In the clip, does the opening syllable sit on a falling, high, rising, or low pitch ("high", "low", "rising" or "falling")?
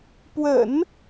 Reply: low